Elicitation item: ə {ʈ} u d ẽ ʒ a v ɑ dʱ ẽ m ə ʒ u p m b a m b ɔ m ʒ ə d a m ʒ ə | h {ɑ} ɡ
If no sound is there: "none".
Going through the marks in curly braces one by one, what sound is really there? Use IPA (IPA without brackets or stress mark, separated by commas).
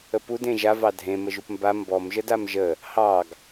p, ɑ